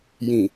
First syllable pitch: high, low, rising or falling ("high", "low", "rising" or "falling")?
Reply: low